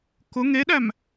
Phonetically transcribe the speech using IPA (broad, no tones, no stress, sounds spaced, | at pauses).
k ʊ ŋ e ɗ æ m